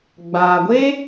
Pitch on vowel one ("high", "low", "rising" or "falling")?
low